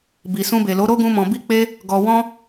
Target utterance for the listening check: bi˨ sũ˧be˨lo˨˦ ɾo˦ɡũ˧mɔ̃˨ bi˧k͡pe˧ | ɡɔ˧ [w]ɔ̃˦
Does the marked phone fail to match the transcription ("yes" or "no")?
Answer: no